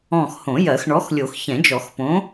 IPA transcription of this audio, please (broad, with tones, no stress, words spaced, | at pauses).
ɔ̃˦˨x hõ˨˩˦jɜ˨˩˦xɳɔ˨˥xlʲo˨˩˦x çɛ̃˨˩˦d͡ʒɔ˨˩˦xpõ˨˥